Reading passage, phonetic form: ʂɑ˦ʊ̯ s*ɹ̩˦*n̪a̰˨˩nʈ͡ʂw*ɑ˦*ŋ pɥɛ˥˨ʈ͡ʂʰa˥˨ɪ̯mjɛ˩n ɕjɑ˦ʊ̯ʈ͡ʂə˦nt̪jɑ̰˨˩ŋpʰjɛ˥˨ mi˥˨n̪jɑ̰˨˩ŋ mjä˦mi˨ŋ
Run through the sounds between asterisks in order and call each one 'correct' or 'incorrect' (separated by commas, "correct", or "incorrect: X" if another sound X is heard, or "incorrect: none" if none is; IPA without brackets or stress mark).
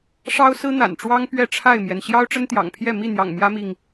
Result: correct, correct